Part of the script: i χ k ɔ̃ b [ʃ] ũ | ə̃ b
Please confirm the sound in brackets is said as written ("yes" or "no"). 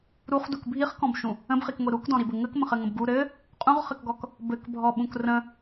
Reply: yes